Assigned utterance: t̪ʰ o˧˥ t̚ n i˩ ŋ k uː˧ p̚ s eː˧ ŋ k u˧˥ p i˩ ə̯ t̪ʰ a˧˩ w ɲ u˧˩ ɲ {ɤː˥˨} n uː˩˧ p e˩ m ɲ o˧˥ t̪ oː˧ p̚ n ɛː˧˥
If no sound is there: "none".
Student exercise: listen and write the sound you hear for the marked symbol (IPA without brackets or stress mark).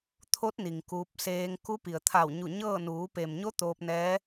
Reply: ɤː˥˨